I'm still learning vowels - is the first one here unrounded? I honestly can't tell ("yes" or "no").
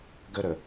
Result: yes